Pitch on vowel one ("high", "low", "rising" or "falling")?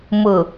low